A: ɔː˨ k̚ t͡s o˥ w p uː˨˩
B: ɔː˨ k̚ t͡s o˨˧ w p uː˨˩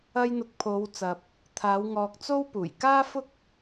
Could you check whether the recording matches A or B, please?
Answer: A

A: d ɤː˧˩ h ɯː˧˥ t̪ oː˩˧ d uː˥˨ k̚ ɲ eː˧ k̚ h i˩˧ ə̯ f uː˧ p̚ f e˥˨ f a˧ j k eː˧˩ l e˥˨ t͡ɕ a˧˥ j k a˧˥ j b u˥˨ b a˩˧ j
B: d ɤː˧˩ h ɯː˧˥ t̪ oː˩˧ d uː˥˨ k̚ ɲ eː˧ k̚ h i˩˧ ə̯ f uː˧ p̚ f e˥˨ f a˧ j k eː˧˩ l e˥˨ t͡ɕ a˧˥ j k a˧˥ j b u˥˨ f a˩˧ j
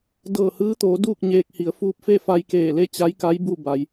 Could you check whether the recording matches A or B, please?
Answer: A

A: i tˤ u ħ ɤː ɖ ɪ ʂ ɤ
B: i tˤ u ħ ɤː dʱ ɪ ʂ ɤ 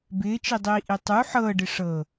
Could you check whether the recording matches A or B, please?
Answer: A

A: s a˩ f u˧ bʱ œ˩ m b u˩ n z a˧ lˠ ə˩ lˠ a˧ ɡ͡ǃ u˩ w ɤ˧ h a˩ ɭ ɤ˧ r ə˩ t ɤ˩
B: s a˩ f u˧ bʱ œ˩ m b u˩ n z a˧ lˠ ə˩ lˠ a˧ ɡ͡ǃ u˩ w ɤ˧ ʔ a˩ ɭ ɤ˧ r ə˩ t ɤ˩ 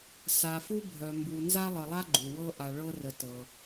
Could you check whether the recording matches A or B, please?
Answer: B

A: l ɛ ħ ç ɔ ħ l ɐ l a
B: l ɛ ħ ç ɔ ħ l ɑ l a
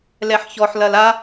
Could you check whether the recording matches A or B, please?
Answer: A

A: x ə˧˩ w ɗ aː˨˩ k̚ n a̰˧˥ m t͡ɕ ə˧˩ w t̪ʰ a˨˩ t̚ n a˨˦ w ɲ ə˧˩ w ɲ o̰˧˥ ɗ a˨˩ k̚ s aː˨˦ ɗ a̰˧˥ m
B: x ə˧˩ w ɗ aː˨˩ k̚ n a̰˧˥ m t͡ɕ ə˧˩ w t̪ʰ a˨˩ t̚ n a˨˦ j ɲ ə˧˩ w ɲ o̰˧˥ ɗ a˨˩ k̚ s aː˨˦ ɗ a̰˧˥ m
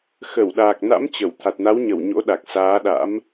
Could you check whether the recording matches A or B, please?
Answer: A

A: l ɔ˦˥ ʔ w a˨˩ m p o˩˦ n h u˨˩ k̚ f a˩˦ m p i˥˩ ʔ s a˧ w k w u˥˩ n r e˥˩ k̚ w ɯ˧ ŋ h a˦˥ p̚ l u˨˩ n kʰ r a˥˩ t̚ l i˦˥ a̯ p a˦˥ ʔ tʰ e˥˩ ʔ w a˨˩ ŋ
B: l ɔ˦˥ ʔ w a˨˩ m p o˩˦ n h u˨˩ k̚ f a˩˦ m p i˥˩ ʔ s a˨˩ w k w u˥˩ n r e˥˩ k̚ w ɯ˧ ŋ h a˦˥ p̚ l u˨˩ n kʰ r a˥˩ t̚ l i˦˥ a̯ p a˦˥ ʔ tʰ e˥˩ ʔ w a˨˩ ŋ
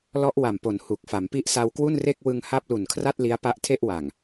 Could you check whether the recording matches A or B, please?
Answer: A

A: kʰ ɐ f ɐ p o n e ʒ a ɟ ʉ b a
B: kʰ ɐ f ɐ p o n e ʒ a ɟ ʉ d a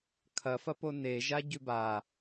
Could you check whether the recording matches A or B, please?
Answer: A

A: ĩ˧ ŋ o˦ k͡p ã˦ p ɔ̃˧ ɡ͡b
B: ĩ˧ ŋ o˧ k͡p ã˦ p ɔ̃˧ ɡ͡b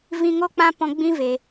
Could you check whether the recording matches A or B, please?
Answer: A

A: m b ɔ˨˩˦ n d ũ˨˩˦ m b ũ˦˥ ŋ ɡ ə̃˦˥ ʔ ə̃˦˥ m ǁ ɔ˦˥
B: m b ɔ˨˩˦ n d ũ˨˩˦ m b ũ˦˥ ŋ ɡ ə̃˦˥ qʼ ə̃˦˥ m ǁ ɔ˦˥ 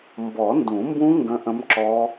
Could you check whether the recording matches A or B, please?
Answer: A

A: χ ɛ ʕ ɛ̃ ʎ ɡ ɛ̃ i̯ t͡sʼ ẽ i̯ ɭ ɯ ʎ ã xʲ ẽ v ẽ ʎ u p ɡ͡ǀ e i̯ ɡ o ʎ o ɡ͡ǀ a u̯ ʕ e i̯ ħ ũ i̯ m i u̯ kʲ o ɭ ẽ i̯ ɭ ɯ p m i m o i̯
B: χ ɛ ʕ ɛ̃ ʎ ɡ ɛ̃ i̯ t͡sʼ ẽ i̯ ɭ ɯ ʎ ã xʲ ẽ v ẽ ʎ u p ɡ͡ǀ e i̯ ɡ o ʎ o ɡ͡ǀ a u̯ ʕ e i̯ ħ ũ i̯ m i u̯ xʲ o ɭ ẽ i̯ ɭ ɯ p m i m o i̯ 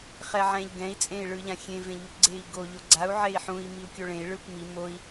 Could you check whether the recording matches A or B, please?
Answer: A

